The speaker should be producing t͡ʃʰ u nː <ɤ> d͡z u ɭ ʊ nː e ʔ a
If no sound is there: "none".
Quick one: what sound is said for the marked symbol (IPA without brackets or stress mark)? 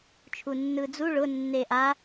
ɯ